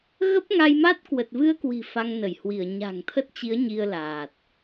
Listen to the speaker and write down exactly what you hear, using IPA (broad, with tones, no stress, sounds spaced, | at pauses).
ɣ ə˦˥ p̚ ŋ a˧ j m a˦˥ t̚ k w ə˨˩ t̚ v ɨ˧ ə̯ k w i̤˨˩ f a˧ ŋ n ə˧˩ j h w i˧˩ ə̯ ɲ a̤˨˩ ŋ t̪ʰ ə˦˥ t̚ t͡ɕ i˨˦ ə̯ ɲ i˧ ə̯ l aː˨˩ t̚